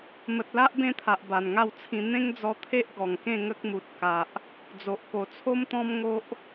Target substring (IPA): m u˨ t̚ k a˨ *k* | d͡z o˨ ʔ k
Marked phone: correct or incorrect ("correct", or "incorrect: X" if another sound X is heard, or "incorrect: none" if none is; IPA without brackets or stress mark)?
incorrect: ʔ